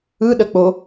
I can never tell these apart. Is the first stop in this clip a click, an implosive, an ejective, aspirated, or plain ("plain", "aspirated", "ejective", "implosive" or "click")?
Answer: implosive